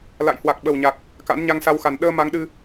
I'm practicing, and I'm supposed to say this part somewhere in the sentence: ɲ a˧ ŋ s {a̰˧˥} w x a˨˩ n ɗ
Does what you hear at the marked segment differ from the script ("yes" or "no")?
yes